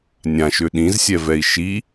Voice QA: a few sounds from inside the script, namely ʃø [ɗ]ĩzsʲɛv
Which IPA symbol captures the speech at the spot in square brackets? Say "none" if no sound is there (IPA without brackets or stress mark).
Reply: ɗ